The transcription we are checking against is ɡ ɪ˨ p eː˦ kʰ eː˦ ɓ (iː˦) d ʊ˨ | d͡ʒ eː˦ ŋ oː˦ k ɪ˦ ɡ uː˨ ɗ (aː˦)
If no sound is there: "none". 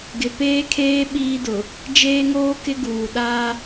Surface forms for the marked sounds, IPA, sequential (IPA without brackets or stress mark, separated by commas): iː˦, aː˦